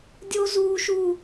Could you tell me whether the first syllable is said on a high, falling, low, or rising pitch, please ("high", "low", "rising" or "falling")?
high